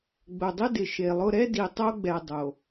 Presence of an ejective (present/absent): absent